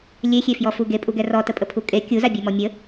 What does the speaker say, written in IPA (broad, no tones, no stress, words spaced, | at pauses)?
lʲexʲefjɔfu ɡepʼuɡɛ rɔtəpʼəpʰu kʼe kʲuzabʲemɔ mʲə